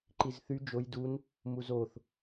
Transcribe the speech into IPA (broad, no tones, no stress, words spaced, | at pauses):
ǃizθy d͡ʒoj dun | muzoθ